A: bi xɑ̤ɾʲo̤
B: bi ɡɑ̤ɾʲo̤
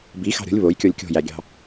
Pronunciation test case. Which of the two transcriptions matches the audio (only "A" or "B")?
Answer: A